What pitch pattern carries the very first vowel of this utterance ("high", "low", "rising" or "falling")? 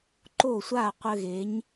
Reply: falling